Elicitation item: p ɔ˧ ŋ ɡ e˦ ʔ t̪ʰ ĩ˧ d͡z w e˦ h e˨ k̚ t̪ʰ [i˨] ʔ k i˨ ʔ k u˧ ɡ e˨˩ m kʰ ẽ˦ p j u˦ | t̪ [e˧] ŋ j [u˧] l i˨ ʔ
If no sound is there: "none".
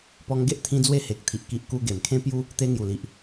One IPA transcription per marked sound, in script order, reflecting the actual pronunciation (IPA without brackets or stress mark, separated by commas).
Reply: i˨, e˧, u˨˩